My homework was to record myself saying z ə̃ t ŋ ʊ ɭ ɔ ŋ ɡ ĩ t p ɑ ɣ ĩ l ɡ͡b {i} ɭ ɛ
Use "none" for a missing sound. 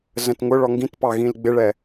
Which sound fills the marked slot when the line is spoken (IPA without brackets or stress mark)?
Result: ɪ